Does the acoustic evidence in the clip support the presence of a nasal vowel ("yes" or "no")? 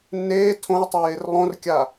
yes